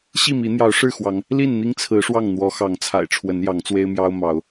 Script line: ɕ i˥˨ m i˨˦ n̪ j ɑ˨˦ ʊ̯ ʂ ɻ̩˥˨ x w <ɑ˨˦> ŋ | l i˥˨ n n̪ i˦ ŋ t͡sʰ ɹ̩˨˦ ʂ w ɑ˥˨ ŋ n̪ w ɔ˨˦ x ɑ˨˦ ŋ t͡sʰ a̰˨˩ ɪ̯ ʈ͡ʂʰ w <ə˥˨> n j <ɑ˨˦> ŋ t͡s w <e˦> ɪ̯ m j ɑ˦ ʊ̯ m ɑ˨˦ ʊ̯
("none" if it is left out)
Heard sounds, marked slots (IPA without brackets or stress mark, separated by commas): ɑ˨˦, ə˨˦, ɑ˨˦, e˦